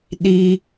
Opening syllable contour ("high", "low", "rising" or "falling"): high